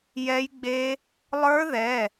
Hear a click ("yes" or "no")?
no